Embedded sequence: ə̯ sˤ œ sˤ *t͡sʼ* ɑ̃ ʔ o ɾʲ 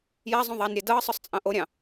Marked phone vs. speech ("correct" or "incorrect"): correct